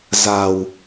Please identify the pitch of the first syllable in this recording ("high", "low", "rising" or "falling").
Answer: low